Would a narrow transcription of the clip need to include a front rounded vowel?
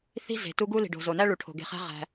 no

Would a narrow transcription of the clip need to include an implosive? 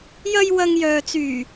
no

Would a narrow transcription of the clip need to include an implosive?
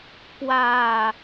no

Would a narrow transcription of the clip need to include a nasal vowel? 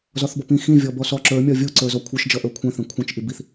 yes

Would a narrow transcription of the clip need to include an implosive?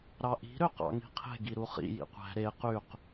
no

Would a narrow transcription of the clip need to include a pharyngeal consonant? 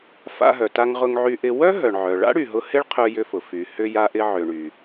yes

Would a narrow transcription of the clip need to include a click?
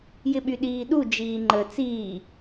yes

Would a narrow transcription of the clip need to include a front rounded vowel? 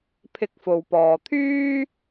yes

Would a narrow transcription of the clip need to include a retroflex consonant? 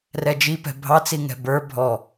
no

